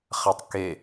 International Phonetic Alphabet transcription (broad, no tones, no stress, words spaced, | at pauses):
χatˤke